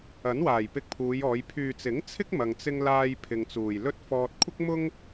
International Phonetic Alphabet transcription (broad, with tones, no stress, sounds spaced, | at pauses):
ɐ˨˥ n w aː˨˩ j p ɪ˧ k̚ pʰ uː˨˧ j ɔː˨˧ j pʰ yː˨ t͡s ɪ˨˥ ŋ t͡sʰ ɪ˥ k̚ m ɐ˧ ŋ t͡s ɪ˥ ŋ l aː˥ j pʰ ɪ˧ ŋ t͡s uː˨ j l ɵ˥ t̚ f ɔː˧ t̚ kʷʰ ɪ˥ k̚ m ʊ˥ ŋ